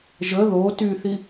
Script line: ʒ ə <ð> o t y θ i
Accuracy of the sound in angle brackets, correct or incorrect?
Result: correct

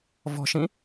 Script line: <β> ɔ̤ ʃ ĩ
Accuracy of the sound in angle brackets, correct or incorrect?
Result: incorrect: v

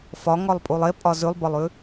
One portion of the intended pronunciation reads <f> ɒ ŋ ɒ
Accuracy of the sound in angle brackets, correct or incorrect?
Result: correct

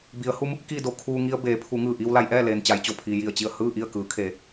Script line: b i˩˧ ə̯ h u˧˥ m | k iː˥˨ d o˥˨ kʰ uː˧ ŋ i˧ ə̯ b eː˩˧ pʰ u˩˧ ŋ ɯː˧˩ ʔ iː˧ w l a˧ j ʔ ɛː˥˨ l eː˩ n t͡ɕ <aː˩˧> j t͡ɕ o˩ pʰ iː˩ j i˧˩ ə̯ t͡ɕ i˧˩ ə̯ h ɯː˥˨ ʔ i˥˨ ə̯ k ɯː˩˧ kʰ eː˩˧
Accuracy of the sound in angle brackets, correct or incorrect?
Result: incorrect: a˩˧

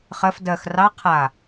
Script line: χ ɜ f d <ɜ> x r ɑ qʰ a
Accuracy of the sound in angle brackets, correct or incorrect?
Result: correct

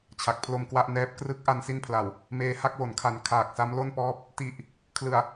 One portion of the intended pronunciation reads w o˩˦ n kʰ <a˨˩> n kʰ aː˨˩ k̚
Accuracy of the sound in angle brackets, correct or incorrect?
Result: correct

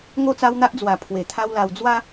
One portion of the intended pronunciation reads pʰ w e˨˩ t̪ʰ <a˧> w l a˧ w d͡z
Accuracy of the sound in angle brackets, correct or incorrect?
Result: incorrect: a˦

